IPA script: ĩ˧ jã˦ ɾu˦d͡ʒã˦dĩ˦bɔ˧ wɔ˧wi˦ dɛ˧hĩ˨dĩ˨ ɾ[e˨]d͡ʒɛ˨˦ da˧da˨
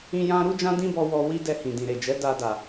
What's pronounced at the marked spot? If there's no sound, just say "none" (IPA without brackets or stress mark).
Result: e˨